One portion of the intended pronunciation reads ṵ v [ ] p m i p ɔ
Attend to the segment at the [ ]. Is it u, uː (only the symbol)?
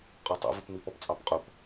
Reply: u